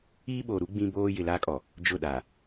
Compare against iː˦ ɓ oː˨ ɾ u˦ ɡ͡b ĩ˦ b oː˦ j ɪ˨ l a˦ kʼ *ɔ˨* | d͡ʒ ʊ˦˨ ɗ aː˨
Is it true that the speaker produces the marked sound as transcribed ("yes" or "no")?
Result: yes